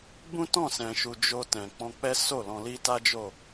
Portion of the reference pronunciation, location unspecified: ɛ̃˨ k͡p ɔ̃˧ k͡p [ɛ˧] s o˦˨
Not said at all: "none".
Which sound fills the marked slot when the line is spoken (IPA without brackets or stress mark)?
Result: ɛ˦